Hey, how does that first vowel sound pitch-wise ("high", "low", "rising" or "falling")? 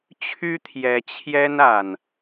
high